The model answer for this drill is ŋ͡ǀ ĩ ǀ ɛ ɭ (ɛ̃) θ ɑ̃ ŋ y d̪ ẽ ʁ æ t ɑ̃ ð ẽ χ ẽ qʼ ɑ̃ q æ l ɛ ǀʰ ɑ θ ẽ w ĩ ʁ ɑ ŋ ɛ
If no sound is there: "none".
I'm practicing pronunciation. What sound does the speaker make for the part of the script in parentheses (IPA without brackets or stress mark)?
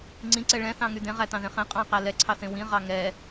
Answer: ɛ̃